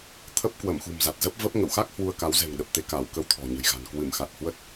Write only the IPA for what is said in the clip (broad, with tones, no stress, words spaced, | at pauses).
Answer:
t̪ʰə˦˥p̚kwə˧˩mxṳ˨˩m za˨˩t̚zə˦˥p̚ və˦˥p̚ ŋə̰˧˨wxa˦˥k̚ hwu˧ə̯ka˨˦wzɛ̤˨˩ŋ ɗə˨˩p̚t̪e˧ ka˧˩w kə˧wt̪ʰɔ̤˨˩ɲə̤˨˩jɣa̤˨˩n kwɨ˧˩mxa˨˩t̚hwə˦˥t̚